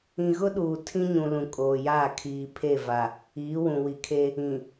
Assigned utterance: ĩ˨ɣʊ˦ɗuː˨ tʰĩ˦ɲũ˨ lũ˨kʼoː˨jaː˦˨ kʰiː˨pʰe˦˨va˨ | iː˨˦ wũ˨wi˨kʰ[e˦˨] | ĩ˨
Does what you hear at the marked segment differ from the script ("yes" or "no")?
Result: yes